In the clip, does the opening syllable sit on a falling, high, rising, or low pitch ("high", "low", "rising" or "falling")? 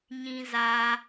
high